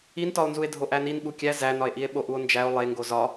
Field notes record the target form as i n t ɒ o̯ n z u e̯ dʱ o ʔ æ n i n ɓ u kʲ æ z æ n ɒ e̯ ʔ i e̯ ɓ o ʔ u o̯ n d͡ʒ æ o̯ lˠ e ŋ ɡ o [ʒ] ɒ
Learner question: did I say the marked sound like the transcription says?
no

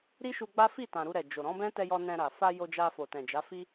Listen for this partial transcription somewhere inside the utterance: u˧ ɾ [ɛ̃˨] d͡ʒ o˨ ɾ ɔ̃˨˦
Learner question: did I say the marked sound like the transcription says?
no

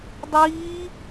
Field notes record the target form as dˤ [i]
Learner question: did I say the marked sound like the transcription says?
no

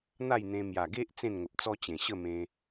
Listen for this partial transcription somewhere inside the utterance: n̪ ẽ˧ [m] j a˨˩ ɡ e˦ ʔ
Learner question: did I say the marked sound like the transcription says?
yes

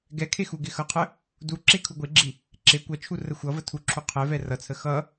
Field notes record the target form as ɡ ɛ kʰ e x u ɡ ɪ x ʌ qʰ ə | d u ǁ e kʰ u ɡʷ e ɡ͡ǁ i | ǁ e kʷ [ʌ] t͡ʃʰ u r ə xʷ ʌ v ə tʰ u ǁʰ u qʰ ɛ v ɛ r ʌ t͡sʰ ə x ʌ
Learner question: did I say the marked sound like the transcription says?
yes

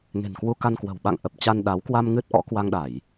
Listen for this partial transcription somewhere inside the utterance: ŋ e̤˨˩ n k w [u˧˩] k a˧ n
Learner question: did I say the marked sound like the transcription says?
no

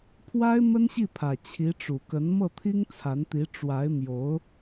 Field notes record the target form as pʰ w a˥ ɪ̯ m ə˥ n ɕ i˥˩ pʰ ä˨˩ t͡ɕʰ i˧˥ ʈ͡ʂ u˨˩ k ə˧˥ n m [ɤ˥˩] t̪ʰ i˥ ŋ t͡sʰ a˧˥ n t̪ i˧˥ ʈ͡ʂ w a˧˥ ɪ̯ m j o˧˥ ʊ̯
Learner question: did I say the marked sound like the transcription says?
yes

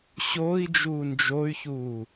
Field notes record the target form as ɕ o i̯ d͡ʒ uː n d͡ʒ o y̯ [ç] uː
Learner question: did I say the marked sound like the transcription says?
yes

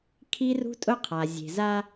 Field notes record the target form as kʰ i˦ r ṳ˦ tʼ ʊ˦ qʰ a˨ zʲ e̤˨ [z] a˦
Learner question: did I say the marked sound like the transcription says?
yes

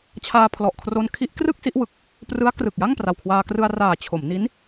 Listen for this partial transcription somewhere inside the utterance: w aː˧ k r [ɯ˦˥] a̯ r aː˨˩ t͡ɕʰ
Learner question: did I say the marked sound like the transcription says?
no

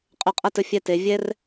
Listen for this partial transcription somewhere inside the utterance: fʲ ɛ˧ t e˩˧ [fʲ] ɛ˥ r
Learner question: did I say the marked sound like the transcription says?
no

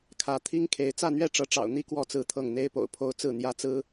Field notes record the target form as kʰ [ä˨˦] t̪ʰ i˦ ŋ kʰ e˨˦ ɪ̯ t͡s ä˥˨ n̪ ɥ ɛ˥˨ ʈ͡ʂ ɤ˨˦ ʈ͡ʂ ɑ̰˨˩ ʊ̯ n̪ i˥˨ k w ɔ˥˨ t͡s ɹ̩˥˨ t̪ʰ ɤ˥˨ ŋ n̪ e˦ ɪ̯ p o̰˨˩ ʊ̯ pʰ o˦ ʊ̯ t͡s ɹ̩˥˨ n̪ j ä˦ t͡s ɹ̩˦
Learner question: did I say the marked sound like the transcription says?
yes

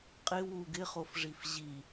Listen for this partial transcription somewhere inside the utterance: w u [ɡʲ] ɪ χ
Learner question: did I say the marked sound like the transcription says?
no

